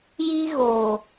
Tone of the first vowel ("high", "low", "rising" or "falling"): high